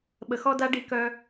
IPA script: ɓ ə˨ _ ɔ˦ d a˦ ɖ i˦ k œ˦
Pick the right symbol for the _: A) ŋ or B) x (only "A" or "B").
B